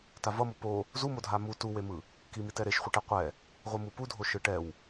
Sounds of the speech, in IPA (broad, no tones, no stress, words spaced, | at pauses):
tavʌmo po | zu modʱamu tuwemɯ | kimitɛ ɾeʃχʷɯʈɛ qʷɛ | ʁʷɯmupudʱo ʃɯʈɛw